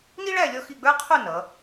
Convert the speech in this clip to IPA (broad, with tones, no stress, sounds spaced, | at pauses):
n i˥ ɭ æ˥˧ lʲ ɔ˥˧ x i˥˧ ɡ͡b ə˞˥ qʰ u˥˧ n ʌ˩˧